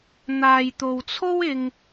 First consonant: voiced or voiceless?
voiced